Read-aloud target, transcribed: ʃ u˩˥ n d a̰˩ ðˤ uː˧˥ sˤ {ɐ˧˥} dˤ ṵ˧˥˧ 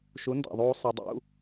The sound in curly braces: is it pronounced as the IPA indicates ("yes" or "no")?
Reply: yes